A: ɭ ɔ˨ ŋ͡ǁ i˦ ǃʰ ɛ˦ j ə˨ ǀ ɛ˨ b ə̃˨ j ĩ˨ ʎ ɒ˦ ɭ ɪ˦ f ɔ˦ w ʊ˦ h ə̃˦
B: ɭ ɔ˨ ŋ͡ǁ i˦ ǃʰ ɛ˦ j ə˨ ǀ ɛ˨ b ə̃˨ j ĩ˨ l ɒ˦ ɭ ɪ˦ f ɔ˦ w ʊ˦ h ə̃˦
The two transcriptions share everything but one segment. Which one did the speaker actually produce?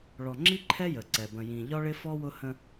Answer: A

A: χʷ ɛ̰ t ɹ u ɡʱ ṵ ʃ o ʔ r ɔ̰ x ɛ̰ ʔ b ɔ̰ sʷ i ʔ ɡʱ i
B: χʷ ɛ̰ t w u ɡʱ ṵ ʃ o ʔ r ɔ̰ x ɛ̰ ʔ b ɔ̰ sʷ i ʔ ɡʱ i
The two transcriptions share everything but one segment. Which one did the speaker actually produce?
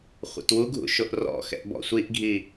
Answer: B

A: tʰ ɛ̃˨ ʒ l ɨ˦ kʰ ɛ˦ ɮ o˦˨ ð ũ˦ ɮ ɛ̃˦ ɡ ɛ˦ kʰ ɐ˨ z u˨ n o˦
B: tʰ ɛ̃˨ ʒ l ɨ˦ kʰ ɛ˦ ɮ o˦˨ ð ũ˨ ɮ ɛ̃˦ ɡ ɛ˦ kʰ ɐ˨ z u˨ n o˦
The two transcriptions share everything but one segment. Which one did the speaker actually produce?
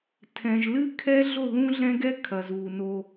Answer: A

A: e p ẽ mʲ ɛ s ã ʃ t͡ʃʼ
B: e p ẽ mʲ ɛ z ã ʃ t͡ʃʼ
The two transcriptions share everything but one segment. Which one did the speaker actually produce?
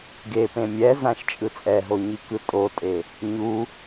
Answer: B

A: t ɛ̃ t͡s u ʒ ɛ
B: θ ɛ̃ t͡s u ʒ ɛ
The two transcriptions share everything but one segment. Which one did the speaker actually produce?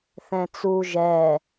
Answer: B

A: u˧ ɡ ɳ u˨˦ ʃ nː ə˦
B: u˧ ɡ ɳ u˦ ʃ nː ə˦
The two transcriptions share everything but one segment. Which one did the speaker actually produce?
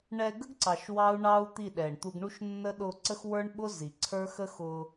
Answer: B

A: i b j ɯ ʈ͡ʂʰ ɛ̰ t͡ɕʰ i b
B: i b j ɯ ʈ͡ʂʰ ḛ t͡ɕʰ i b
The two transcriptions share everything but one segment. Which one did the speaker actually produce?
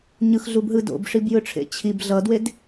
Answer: B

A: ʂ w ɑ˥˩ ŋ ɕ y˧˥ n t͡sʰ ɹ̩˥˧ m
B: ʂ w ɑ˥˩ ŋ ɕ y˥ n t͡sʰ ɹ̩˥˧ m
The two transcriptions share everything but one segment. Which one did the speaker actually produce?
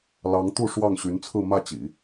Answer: A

